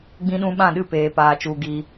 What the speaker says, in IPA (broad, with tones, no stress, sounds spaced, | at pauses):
ɡ͡b ĩ˦ ɗ ũ˦ ɓ ã˦˨ ɗ ɨ˦˨ p eː˨ p aː˨ t͡ʃ u˨ ɡ i˧